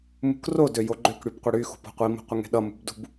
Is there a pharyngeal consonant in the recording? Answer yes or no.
no